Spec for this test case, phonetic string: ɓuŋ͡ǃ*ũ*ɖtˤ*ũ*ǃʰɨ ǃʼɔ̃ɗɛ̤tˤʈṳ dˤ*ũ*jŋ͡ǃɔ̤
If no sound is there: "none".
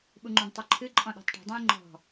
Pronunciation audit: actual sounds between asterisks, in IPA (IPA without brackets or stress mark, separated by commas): ũ, u, ũ